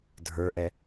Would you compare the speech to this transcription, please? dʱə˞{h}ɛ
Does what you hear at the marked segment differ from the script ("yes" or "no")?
yes